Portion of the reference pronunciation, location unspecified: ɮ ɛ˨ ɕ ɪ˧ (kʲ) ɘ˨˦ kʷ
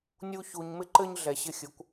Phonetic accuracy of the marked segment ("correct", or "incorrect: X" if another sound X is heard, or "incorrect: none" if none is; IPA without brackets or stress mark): incorrect: xʲ